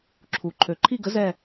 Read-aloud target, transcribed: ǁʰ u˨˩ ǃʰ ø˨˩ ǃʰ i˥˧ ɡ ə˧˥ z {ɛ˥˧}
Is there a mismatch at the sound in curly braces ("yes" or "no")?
no